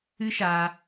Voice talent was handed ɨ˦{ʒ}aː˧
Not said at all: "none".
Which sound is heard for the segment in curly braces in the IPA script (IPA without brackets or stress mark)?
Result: ʃ